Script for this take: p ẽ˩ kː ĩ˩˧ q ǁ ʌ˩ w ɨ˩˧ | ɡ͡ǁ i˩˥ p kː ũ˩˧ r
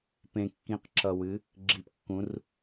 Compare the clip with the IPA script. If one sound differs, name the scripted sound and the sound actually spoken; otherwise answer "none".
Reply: none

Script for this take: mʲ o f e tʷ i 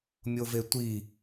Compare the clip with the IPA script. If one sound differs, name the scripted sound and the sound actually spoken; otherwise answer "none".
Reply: f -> v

